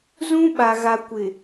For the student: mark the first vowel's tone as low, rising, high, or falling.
high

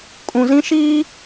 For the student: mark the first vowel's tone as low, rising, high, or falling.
low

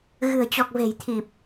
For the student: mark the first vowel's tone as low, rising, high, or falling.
low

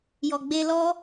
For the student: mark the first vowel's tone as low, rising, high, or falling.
low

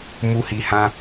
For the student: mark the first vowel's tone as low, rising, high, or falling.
high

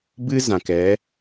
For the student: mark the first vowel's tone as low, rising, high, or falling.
high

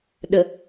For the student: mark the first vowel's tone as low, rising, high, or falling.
low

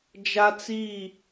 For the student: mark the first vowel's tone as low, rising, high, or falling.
high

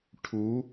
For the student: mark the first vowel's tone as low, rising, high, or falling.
rising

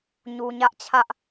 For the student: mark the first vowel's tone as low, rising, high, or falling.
low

